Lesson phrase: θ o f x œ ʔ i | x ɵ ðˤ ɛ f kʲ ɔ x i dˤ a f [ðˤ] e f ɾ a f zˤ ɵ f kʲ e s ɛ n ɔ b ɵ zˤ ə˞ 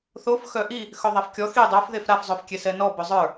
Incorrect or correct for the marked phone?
incorrect: ð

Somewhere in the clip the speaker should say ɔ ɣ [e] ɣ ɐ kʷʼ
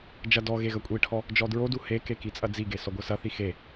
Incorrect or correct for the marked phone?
correct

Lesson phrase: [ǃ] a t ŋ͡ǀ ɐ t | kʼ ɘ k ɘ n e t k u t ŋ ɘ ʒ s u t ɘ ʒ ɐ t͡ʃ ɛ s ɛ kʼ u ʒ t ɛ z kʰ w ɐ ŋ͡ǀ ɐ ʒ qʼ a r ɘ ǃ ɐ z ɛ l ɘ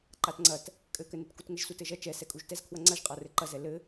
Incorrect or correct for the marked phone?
correct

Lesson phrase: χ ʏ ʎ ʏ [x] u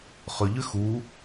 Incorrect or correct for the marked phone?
correct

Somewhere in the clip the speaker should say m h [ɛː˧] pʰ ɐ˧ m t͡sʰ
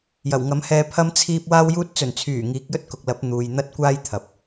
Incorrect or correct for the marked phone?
correct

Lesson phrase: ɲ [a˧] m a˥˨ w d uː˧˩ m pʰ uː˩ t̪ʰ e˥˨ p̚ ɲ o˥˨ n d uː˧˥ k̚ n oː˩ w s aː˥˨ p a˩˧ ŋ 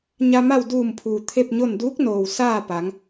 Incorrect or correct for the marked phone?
correct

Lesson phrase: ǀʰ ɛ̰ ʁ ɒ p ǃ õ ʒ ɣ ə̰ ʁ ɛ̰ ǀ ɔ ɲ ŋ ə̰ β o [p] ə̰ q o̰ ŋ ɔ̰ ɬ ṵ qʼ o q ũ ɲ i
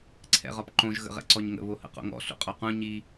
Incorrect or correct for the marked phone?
incorrect: h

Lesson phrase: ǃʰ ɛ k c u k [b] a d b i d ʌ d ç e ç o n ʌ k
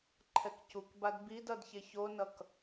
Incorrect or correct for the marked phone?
correct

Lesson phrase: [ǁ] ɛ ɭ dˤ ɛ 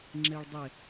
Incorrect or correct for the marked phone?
incorrect: ŋ͡ǁ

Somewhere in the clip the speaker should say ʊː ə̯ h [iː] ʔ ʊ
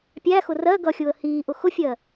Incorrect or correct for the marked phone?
correct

